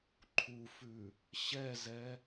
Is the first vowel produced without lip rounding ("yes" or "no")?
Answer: no